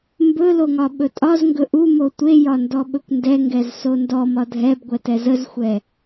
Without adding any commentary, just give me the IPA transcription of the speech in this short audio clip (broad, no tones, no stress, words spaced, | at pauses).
mbɵloŋɒ ɓɵtʼɒzŋɡɵ ʔumo tʷejɒndɔɓɵkʷ ndɛŋɡɛz sondɔmɒ dʱɛbɡʷɛtɛ zəzxʷɛ